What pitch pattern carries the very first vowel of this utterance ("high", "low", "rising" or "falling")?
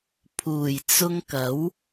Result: low